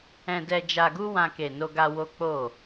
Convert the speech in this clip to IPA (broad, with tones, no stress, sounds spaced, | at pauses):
ɛ̃˧ d ɛ˧ d͡ʒ a˧ ɡ u˦ w ã˧ k e˨ n o˧ ɡ a˧ w o˦ k͡p o˦˨